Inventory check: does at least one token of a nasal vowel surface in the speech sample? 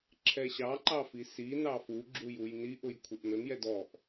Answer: no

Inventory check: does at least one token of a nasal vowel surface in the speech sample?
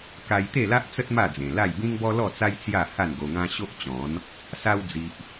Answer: yes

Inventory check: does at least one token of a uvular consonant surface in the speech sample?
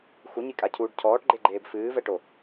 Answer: no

